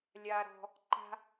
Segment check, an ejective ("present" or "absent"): absent